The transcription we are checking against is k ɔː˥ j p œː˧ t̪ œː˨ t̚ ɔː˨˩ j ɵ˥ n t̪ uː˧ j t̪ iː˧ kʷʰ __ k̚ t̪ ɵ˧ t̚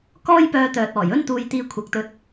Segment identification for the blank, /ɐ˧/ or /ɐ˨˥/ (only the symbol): ɐ˨˥